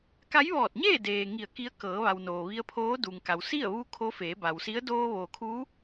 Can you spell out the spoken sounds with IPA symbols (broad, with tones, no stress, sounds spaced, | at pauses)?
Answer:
k a˧˥ j ʋ ɔː˧˩ t̚ ɲ eː˥˨ d eː˩ ŋ i˧˩ ə̯ k i˧˥ ə̯ k ɤː˩˧ ʋ a˩ w n oː˩ ʋ i˧˥ ə̯ pʰ oː˧˥ d u˩ ŋ k a˩ w s i˥˨ ə̯ ʋ u˧˥ kʰ o˧˥ f eː˩˧ b a˩ w s i˧˥ ə̯ d oː˧ ʋ oː˩ kʰ u˧˥